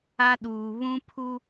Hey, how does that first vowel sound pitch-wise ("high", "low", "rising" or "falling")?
high